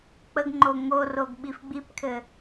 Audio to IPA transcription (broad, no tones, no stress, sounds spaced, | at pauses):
k͡p ə ɡ ŋ͡ǃ o ŋ o r o ɡ ɓ i f ɡ͡b i p kʰ ɘ